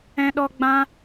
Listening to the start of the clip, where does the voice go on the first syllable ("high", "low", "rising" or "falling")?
high